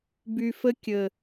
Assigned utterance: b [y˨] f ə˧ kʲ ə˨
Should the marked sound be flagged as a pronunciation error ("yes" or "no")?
no